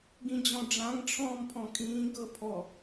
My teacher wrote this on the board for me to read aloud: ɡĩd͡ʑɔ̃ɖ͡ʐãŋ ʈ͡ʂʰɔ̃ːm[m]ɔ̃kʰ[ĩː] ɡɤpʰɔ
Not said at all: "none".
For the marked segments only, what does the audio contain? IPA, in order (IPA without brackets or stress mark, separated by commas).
pʰ, ĩː